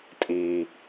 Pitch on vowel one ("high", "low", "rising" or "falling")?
high